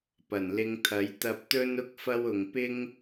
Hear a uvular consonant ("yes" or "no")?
no